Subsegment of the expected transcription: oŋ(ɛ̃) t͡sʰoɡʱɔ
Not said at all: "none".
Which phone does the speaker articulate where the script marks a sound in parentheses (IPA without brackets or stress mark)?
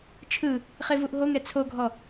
ɛ